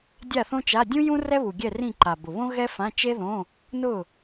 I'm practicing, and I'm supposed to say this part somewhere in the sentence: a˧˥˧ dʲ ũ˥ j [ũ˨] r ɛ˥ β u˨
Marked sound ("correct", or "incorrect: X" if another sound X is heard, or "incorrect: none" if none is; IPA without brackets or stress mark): incorrect: ũ˥